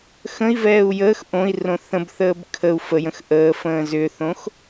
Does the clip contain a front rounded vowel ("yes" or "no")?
yes